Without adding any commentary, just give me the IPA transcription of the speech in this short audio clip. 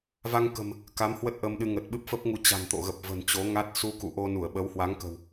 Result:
v a˧ ŋ k ə̤˨˩ m | k a˨˦ m h w ə˦˥ t̚ ʔ ə˧ m ɗ ɨ˧ ŋ ə˨˩ t̚ ɓ ɨ˦˥ p̚ f ə˦˥ p̚ ŋ u˧ t͡ɕ a̤˨˩ n t̪ o̰˧˨ ɣ ə˨˩ p̚ v ə̤˨˩ n t͡ɕ o˨˦ ŋ a˦˥ t̚ s u˧ k ṵ˧˨ ʔ o˧ n u˧˩ ə̯ ɓ ə˨˦ w h w a˨˦ ŋ k ə̤˨˩ w

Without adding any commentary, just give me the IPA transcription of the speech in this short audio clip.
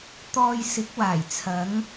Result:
t̪ ɔː˧ j s ɪ˨˥ k̚ w aː˨˩ j t͡sʰ ɐ˨˧ ŋ

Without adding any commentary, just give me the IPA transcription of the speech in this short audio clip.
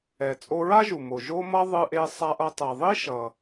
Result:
ɛ˩ t͡sʼ o˧ ɹ a˥ ʒ u˩ m o˩ ʒ o˧ m ʌ˧ ðˤ ɯ˧ ʔ e˧ sˤ a˧ ʔ ʌ˧ tˤ ɛ˩ ðˤ i˥ ʃ ʌ˩

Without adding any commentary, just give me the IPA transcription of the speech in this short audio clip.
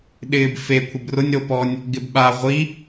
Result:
ɗ ɪː b f e kʷʰ ɪ b r ʊ nʲ ɾ o p ɔ nʲ | ɡ ɪ b ɓ a ʁʷ i

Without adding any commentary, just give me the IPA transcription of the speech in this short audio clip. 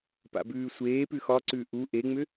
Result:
p a̰ b ʉː sʷ eː p ʉ x ɒ ǀ ʉ ʔ u ʔ e ŋ͡m ʏ

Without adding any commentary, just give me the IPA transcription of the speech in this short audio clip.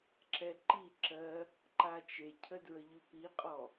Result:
ǁ ɛ ǃ i ǁ ɜ | ǃ a t͡ʃ e cʰ ə d ɹ ə ʎ ʉ p i qʼ ɔ

